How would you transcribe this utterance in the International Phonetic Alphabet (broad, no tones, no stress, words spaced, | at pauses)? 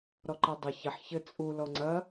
ɾɔǃadˤɐ çɐħ çɘ t͡sʼu lɔŋ͡ǀɐ